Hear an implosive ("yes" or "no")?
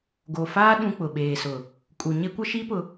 yes